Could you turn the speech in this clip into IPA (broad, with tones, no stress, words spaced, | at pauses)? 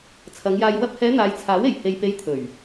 t͡sʰɐ˨˧ŋjaː˧j wɐ˧p̚hɛː˨˧ n̪aː˨˧jt͡sʰaː˨˥we˨˩j he˨j pe˨˧j t̪ʰɵ˨˩ɥ